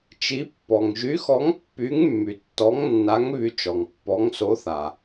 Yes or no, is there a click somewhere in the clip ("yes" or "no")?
no